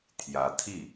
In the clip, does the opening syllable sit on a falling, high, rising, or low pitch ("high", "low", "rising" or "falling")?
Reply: rising